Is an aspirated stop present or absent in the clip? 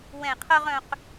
present